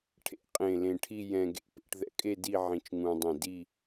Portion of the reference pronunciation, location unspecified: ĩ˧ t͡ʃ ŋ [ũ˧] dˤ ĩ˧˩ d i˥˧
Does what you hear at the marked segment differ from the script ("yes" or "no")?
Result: no